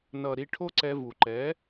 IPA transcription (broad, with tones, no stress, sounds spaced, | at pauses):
n ʌ˨ ɾ i˧ ʈʰ o˦ ǀ ɛ˧ v u˨ ǃ ɛ˨˦